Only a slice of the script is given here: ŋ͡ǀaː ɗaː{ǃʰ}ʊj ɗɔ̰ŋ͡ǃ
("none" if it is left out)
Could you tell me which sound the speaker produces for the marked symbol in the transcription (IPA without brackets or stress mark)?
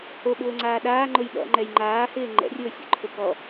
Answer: ŋ͡ǃ